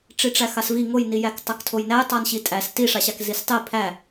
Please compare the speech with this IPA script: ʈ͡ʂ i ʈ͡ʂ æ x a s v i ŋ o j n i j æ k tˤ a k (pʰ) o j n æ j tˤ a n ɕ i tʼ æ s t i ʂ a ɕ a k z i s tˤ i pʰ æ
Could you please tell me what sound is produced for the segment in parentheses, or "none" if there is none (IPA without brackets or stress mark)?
tʰ